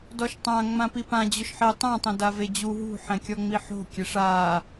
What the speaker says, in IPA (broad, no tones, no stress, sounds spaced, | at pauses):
d ɔ ʃ tˤ ã ŋ͡m ã p i p ã d͡ʑ ʊ ʃ ħ e tˤ ã tˤ ɛ̃ d a v e d͡ʑ u ɦ ṳ ħ ɛ̃ kʲ ɔ ŋ͡m i ħ o̤ kʲ ɛ ʂ a